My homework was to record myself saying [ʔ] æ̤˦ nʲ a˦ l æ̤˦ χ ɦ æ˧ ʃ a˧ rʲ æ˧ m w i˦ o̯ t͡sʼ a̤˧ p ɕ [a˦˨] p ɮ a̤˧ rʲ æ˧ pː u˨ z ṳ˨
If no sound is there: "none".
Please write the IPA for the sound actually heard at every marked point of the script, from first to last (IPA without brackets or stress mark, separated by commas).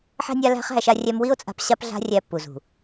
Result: ħ, a˧